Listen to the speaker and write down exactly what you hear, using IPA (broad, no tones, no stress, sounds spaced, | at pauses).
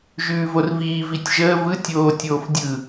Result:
ʒ ʉː v o r v iː v i tʲ ʒ əː v ɯ tʲ oː tʲ oː f dʲ ɯ